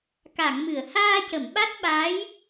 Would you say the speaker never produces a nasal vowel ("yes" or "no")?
yes